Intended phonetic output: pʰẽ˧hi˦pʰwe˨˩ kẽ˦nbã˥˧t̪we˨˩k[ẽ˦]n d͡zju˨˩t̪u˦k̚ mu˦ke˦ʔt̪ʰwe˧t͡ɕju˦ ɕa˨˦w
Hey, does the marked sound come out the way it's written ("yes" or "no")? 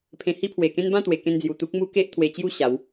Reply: no